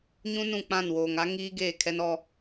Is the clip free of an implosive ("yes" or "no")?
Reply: yes